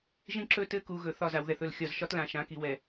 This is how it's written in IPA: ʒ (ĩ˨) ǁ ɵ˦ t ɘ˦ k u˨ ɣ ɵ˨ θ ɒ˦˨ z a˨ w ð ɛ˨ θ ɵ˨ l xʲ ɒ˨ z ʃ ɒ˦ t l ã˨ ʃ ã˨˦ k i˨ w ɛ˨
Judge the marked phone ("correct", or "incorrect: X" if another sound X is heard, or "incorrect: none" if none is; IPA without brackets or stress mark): incorrect: ĩ˦